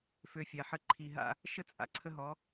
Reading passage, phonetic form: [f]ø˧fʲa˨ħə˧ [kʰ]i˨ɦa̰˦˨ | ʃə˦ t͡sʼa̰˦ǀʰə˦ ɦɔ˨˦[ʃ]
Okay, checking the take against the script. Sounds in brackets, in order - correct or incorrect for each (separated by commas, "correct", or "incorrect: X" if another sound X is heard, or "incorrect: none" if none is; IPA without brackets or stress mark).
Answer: correct, incorrect: ǃʰ, incorrect: none